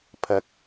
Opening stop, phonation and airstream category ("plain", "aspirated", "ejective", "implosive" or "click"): aspirated